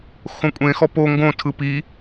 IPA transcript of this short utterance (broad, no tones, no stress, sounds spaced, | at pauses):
x õ kʷʼ ẽ x ɔ p o ŋ ɡ õ tʰ ɯ p i